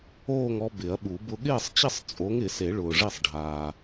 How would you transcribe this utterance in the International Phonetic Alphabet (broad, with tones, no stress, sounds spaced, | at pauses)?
oː˥˨ ŋ ɔ˦ b ɪ˨˩˦ ɐ̯ ɓ u˨˩˦ b ʊ˦ ɠ ɪː˥˨ sˤ t͡ɕ ɪ˥˨ sˤ t͡sʼ o˨˥ ŋ ɪ˨˩˦ s e˨˩˦ ɭ ʊː˨ ʐ i˥˨ sˤ ɖʱ aː˨